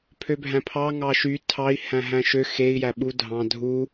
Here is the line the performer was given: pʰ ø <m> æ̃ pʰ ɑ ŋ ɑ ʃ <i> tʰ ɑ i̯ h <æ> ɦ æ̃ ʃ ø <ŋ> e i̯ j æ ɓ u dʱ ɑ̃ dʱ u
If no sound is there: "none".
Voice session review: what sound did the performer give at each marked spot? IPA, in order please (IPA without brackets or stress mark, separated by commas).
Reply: bʱ, y, æ̃, x